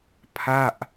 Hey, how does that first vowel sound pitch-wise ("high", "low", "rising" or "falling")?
falling